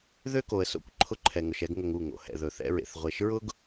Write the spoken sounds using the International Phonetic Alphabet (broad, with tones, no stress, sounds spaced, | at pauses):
ð ø˦ k o˨ ə̯ s o̰˦ kʷ ǃʰ ʊ˦ ǃʰ ɛ˨ ŋ ʊ˨ ʃ ɛ˦ ɡ ŋ ɵ˨ ŋ u˦˨ ŋ o̰˨ h ɛ̰˨ ð ɵ˨ θ ɛ̰˦ ɹ ḛ˨ θ ʁʷ e˨ ʃ ɹ ʊ˦ ɡ